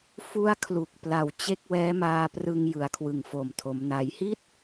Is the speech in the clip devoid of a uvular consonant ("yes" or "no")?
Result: yes